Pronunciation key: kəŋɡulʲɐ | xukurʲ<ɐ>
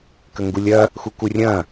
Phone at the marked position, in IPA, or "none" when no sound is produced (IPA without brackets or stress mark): ɐ̃